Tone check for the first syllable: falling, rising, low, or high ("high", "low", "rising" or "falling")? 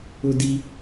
high